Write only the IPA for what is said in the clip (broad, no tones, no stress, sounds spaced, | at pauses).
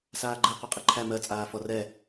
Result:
s aː ɡ͡ǃ ɛ qʷ ɛ qʼ ɛ ǃʰ æ m ɜ t͡sʼ aː f ɔ r ɛ